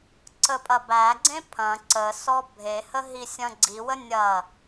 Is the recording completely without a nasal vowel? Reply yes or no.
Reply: no